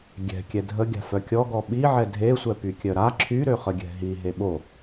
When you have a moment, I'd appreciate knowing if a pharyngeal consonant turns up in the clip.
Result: yes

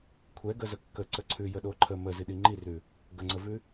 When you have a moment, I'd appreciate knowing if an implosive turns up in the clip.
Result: yes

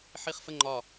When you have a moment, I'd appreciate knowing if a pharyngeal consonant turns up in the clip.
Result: yes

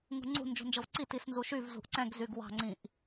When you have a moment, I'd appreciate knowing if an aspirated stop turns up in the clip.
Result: no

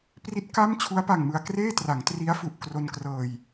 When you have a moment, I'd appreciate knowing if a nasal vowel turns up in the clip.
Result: no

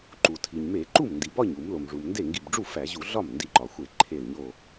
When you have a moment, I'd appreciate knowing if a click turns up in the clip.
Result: yes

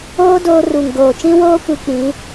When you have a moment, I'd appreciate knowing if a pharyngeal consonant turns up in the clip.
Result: no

